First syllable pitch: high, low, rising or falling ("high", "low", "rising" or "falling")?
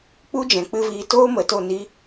high